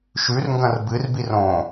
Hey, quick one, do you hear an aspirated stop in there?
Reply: no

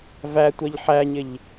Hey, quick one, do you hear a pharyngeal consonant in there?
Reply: yes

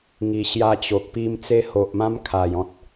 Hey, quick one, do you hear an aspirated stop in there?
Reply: yes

